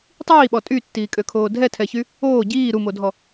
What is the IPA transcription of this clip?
tˤ iː ɓ ɔ tʼ y tː iː kʼ ø kʰ oː dʱ ɛ tʰ ɛ ç y | oː ɟ iː ɾ u m o dʱ ɔ

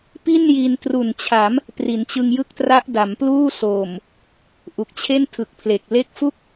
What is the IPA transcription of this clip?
p i˥˩ n j i˧ n t r u˨˩ n t͡ɕʰ a˩˦ m | p r i˩˦ n t͡ɕ ɯ˧ ŋ j ɯ˥˩ k̚ t r a˦˥ ʔ d a˩˦ m p l uː˥˩ s oː˨˩ m | ʔ u˨˩ k̚ t͡ɕʰ e˥˩ n tʰ ɯ˨˩ k̚ pʰ l e˨˩ k̚ l e˦˥ k̚ f u˥˩ k̚

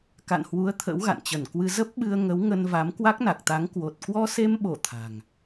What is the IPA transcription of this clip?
k a̰˧˨ n h w u˨˦ ə̯ t̪ʰ ə̰˧˥ w ɣ a̰˧˨ n t͡ɕ ə˧˩ n k w ɨ˧ z ə˦˥ p̚ ɓ ɨ˧ ə̯ ŋ ə˨˦ w ŋ ə˧ n v a˨˦ m k w a˦˥ k̚ n a˨˩ k̚ t̪ a˨˦ ŋ k w o˨˩ t̚ k w ɔ˧ s e˧ m ɓ o˧˩ t̪ʰ a̤˨˩ ŋ

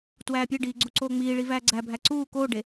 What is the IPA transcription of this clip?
t w æː pʲ e ɖ iː ɡ͡ǀ u ǀ oː ŋ͡m iː ɭ i v æː ɡ͡ǀ æ bʱ æ ǀ uː k oː ɖ e

